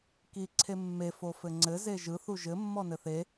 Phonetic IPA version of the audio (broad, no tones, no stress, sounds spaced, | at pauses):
k i ǀʰ e mː e f o f ɘ ŋ͡ǀ ɘ z e ʒ ɯ θ u ʒ ɘ mː ɔ n ɘ θ e